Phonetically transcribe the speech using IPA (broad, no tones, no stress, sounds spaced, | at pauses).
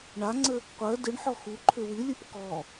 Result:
ɳ a ŋ͡ǀ ə | qʷ ɜ d ɨ ɳ ħ ɔ x u ǃʰ ʏ w ɨ lʲ ɨ p k ɔ